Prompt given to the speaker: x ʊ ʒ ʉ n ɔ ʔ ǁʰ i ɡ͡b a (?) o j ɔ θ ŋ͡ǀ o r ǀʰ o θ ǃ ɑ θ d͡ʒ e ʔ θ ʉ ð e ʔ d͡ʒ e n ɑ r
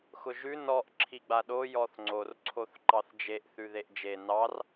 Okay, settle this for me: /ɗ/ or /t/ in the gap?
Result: ɗ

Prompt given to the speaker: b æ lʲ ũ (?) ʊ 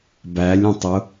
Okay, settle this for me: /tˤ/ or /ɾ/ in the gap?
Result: tˤ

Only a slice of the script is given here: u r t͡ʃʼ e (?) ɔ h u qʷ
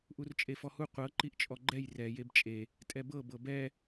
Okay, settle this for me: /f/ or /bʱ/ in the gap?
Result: f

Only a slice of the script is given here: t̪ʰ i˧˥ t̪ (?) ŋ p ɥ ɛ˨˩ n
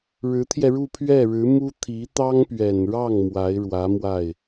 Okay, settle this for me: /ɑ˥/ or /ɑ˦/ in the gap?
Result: ɑ˥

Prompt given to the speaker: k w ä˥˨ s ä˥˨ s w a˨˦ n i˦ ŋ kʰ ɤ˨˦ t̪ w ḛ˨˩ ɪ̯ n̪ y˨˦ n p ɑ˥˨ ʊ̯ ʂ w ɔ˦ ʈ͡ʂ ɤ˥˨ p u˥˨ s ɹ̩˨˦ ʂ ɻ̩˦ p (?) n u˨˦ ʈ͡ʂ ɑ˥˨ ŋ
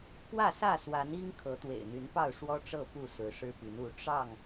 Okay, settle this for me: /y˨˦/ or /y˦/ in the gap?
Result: y˨˦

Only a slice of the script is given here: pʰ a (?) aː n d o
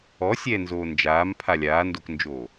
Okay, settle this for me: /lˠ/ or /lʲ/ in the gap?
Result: lʲ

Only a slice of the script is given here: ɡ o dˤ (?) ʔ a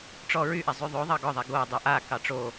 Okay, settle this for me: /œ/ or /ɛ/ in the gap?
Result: œ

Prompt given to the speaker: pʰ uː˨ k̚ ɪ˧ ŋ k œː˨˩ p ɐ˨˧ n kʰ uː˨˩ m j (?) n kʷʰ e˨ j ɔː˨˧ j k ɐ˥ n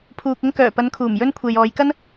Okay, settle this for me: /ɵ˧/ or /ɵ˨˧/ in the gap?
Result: ɵ˧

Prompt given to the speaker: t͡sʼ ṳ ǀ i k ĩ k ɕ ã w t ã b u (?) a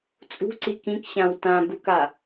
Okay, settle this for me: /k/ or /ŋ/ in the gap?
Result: k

